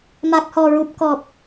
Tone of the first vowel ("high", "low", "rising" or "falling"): low